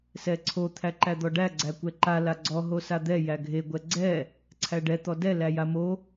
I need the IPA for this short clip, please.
s ɛ ǀʰ o t̪ʰ æ ǃ æ d̪ ɔ ɖ æ ɡ͡ǀ æ kʷ ɛ ǃ a l a ɡ͡ǀ ɔ ɦ o s a d̪ ɛ j æ ɡʱ e ɡʷ ɛ ɡ͡ǀ ɛ | ǀʰ æ ɖ ɛ t̪ ɔ d ɛ l æ j a m o

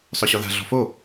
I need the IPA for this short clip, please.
sˤ œ ɕ ɔ ð a̤ ɮ ɔ̤ f o

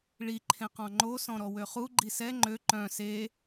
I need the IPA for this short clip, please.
ɭ i ǃʰ ẽ q ɔ̃ ŋ͡ǃ o s ɔ̃ ɾ ɔ w ø χ u ɡ͡ǃ i s ɛ ŋ͡ǃ ø ǃ œ̃ s e

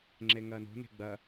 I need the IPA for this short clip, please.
ŋ͡ǁ e ŋ ɐː n o̤ n e̤ ɡ͡b ɐ

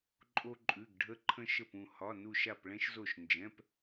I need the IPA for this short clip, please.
ǃʼ o˧ ǃʼ ʉ˩˧˩ ɡ ɖʱ ə˧ ǃʰ ə̃˧ ʃ ə˧˩ p ũ˧˩ h ɒ˩˧˩ n u˧˩ ʃ a˧˩ p ɭ ɛ̃˧ ʃ z o˧˩ ʃ n d͡ʒ ɛ̃˩˧˩ p

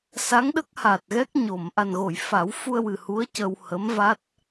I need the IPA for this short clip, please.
s a˧˥ ŋ ɗ ə˦˥ k̚ h a˨˩ t̚ ɣ ɛ˦˥ k̚ ɲ o˨˩˨ m ʔ a˨˩ n ɣ o˨˩˨ j f a˨˩˦ w f u˧ ə̯ w ɨ˨˩ h u˧˥ ə̯ c ə˧ w h ə˧˥ m v a˦˥ t̚

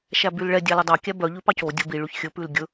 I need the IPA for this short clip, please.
ʃ æ b y l ɭ ɛ dʲ ɑ l o dˤ ɑ kʲ æ b œ ʎ ʉ p ɑ c o dʲ o b i ɭ y ç xʲ ɵ p ʉ l ɡʲ ɵ

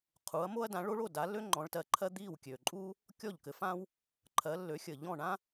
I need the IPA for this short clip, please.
qʰ uː˨˦ ɐ̯ m o˥ ɐ̯ d ã˨˦ ɭ o˥ ɭ o˥˨ d a˨˦ lː ø˥ ŋ͡ǃ ɔ̃˨˦ ɭ t ɜ˨˦ ǃʰ ɜ˥ d̪ iː˥˨ w kʲ ø˨˩ ǃʼ uː˥ | kʲ ɔ˥˨ ʎ k ɘ˨˦ f ãː˥ w | ǃʰ ɜ˨˦ lː ø˨˦ xʲ ə˨˩ ʎ ɔ̃˥˨ ɳ ã˥

